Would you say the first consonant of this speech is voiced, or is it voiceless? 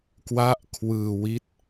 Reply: voiceless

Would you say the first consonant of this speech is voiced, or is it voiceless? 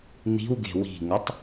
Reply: voiced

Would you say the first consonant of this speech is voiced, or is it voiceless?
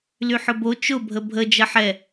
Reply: voiced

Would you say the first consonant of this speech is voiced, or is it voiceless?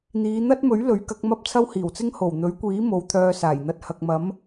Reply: voiced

